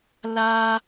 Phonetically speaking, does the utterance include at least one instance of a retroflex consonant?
no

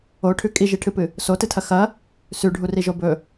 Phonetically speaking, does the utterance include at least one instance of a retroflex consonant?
yes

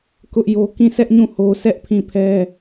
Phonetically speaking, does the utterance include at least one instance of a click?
no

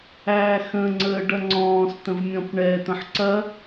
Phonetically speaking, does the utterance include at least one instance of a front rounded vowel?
no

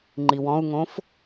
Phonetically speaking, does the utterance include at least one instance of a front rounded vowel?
no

